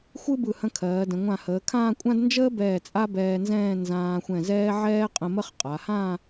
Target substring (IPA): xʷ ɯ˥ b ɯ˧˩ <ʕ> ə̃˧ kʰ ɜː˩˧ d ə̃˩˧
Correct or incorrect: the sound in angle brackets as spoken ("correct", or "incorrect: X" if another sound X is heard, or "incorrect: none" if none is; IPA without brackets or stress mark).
incorrect: h